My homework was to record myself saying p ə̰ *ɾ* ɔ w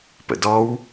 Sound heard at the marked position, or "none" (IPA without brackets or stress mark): d